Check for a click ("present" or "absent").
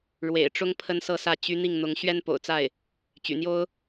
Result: absent